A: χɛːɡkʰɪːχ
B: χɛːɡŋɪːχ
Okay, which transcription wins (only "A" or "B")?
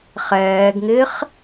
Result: B